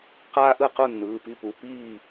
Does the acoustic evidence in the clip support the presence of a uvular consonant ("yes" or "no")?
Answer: yes